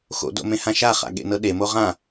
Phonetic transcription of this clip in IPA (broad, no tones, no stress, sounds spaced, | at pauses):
x o̰ d o̰ m ẽ h ã ʃ a χ a̰ ɠ ḛ n ɤ ɗ e m o ʁ ã